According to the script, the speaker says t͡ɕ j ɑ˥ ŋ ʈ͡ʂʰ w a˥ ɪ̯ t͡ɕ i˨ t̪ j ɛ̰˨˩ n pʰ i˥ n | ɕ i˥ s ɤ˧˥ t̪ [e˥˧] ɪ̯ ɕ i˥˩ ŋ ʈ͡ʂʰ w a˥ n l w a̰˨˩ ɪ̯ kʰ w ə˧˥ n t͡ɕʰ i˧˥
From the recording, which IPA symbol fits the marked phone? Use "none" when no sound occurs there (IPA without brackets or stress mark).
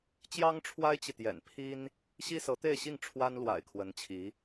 e˥˧